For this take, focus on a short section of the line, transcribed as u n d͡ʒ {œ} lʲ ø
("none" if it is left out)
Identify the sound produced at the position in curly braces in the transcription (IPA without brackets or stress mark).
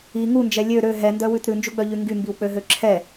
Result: ɛ